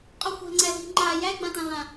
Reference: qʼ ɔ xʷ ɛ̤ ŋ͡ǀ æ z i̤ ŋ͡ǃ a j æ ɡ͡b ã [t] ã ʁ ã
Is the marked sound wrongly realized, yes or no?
no